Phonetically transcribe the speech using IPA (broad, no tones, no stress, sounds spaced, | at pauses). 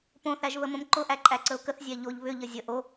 p õ θ æ ʒ β ə m õ m ǃ ʊ ʔ æ ǃʼ æ ǀ ə ʊ̯ k ə θ zʲ æ ʎ o ʎ β ʏ ʎ ə zʲ ə ʔ o